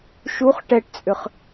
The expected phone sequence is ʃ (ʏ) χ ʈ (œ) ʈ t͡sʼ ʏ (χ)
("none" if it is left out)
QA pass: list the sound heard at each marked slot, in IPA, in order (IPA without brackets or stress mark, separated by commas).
u, ɛ, χ